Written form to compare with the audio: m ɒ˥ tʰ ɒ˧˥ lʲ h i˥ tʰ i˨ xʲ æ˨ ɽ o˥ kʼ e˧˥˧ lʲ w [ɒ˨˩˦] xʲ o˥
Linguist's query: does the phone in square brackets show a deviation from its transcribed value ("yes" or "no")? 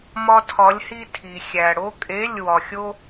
yes